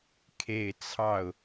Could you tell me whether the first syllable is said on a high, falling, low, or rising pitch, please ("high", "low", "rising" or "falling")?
low